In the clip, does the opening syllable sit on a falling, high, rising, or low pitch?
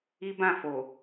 high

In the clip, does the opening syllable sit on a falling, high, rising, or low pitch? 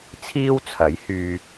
high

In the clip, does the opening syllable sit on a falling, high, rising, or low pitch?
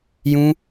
high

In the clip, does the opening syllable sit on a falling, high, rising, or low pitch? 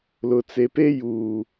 low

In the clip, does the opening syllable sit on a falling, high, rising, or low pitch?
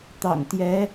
low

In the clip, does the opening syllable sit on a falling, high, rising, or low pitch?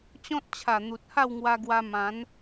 high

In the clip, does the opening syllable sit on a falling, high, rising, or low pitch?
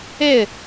falling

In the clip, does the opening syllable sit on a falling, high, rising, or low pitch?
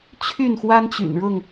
falling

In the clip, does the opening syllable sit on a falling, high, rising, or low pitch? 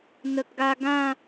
low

